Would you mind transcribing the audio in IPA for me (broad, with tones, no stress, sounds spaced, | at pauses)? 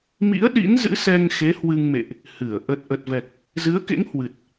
m ḭ˧˥ ə̯ ɗ ḭ˧˥ n z ɨ̰˧˥ s ɛ˧ ŋ x e˨˦ h w ɨ˧ ŋ m ḛ˧˨ ʔ | h ɨ˧˩ ə̯ ʔ ə˨˩ t̚ ʔ ə˨˩ t̚ v ɛ˨˩ k̚ | z ɨ˨˦ ə̯ k ḛ˧˥ ŋ h w ɨ˨˩ t̚